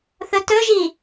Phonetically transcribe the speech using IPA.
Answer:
θ ɵ t ɵ ʒ i

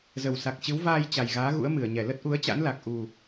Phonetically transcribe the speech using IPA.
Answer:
z ə˨˩ w s a˨˩ k̚ t͡ɕ ɨ˨˦ w v aː˧ j t͡ɕ a˨˩ j ɣ aː˨˦ ɣ ṵ˧˥ ə̯ m ɨ˧˩ ə̯ ɲ ɛ˧˩ l ə˦˥ t̚ ʔ u˨˦ ə̯ t͡ɕ a̰˧˥ n l a˨˩ k̚ ʔ u˨˩

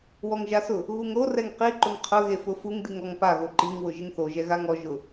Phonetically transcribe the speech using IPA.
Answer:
w ɔ ŋ ʒ a s ʊ | ɣ u ŋ ɾ o r ɛ ŋ q i ǃ ʊ ŋ qʰ ʊ ɣ e f ʊ f u ŋ d i ŋ ɔ ŋ p a ɣ o ǃ i ŋ w ʊ ʒ ɪ ŋ θ o ʒ ɛ ɣ a ŋ ɔ ʒ ʊ

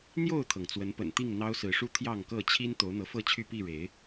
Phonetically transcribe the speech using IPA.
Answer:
n̪ j o˥˨ ʊ̯ t̪ʰ ɤ˩ ŋ t͡s w ə˨˦ n p ə̰˨˩ n t̪ i˥˨ ŋ n̪ ɑ˦ ʊ̯ s ɹ̩˨˦ ʂ u˦ t̪ʰ j ɑ˥˨ ŋ k ɤ˥˨ t͡ɕʰ i˦ n t̪ o˨˦ ʊ̯ n̪ ɤ˨˦ f ɤ˥˨ t͡ɕʰ y˥˨ p i˥˨ ɻ e˨˦ ɪ̯

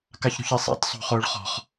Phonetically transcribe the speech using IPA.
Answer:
k a ç ɾ ṳ ç i sˤ a̰ t sˤ o̤ χ ʊː ɭ χ ɔ̤ χ

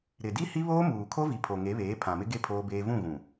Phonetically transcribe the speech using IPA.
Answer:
ɾ ɪ˨ d i˦ h i˦ β oː˦ m uː˨ kʰ o˦ v i˨ pʰ o˨ ŋ e˨˦ β eː˨˦ pʰ ã˨ m ɪ˦ ɡ e˦ pʰ oː˦ b eː˦ v ũ˦˨ ɣ ũ˨

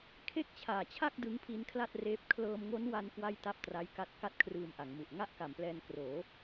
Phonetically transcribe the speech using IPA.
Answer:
kʰ e˥˩ k̚ t͡ɕʰ aː˨˩ t͡ɕʰ a˥˩ k̚ d ɯ˦˥ ŋ pʰ i˦˥ n kʰ l a˥˩ t̚ r eː˦˥ p̚ kʰ l ɤː˧ m ŋ o˦˥ n w a˧ n k w a˥˩ j t a˥˩ p̚ t r a˦˥ j k a˦˥ t̚ k a˥˩ t̚ kʰ r ɯː˧ m ʔ a˩˦ ŋ m u˨˩ ʔ ŋ a˥˩ ʔ k a˩˦ m p l ɛː˧ n k r oː˩˦

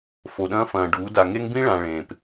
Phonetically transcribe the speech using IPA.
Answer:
f o˨ ɗ ɐ̃ː˦ f ɐ̃ː˨ ɖ uː˨˦ d a˨ ŋ e˦ ŋ b ĩ˦ ɭ ã˨ ɭ ẽː˨ p

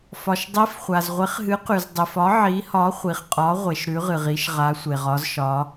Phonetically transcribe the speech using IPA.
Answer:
f ɒ˩ ʃ dˤ i˨˥ f χʷ a˩ z ʁʷ e˨˥ χ ɦ ɨ˨˥ q ʉ˩ z dˤ i˩ f ɒ˨˥ ʕ i˨˥ h ɒ˨˥ χʷ i˩ χ qʼ ɒ˨˥ ʁʷ e˩ ʃ ɾ ʉ˨˥ ʁ ɨ˩ ʁ i˨˥ ʃ ʁ a˨˥ sʷ e˩ ʁ ɒ˨˥ z ʃ ɒ˨˥

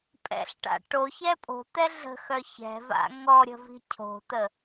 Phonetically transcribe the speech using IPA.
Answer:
pʼ ɛ̰ ɬ ʈ a̰ ʈ o ç ɛ pʼ o̤ t̪ ɛ ɮ ə̤ x œ ç ɛ̤ v a̰ ŋ ɔ ɾʲ ə̤ v i̤ cʰ o̤ t̪ ə

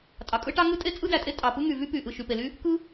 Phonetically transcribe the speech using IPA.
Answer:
tʼ ɑ˩ kʼ ɯ˥ ʈ ɑ˥ ŋ ɯ˥ tʼ e˥ t͡sʼ ɯ˥ d æ˩ tʼ e˥ tʼ ɑ˩ p ɯ˥ ŋ y˩ v y˥ p y˩ ʔ ɯ˩ ʃ y˩ p e˩ l y˥ | k ɯ˥

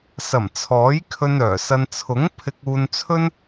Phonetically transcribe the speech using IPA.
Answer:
s ɐ˨˩ m t͡sʰ ɔː˨˥ j kʰ ɵ˧ n œː˨˩ s ɐ˧ n t͡sʰ ʊ˨˥ ŋ pʰ ɪ˧ k̚ uː˧ n t͡sʰ ɵ˥ n

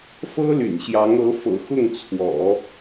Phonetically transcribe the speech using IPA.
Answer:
f ɤ˥ l y̰˨˩ n ɕ j ɑ˧˥ ŋ ɤ˧˥ f ɤ̰˨˩ x ʊ˥˩ ŋ t͡sʰ w ɔ̰˨˩˦

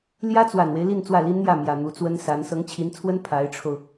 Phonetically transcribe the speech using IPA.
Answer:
l j ä˥ t͡s w a˨˩ n w e˦ ɪ̯ l i˥˧ n t͡s w ä˥˩ l i˥ n n̪ j ä˥˩ m j ä˨˩ n̪ u˧˥ t͡s w ə˥ n s a˧˥ n s ɤ˧˥ ŋ t͡ɕʰ i˧˥ n t͡sʰ w ə˥ n pʰ a˧˥ ɪ̯ ʈ͡ʂʰ o˧ ʊ̯

